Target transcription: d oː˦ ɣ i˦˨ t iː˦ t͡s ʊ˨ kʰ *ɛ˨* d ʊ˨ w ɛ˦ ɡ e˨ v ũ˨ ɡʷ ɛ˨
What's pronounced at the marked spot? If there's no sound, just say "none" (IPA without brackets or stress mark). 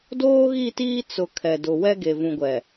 ɛ˨